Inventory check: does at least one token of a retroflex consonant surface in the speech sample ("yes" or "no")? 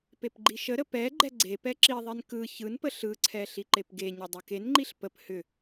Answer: no